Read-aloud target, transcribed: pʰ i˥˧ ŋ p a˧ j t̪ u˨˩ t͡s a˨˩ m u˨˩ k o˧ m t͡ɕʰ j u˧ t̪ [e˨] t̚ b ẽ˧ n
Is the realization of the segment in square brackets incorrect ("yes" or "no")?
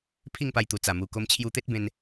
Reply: yes